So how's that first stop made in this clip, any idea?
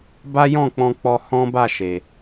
plain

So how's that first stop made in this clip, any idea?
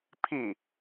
aspirated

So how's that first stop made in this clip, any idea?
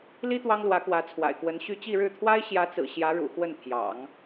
plain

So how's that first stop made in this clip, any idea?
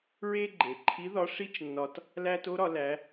click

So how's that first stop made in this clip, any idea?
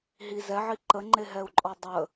click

